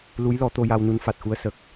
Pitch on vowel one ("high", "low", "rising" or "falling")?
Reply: rising